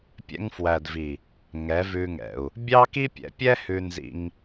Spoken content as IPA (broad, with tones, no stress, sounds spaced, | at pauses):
pʲ ɛ̰˧ ŋ f w æ˨ d v i˨ | ŋ ɛ˨˦ v ʉ˧ ŋ ɛ̰˨ u̯ | bʲ ɑ˦ k i˦ pʲ ɛ̰˨˦ pʲ ɛ˦ h ʉ˧ n z ḭ˧ ŋ